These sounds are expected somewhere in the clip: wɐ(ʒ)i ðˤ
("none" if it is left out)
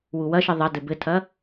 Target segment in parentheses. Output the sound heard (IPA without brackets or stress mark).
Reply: ʃ